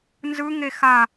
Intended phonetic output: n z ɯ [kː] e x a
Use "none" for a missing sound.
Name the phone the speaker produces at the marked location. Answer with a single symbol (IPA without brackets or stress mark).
ŋ